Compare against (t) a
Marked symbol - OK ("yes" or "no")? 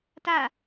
yes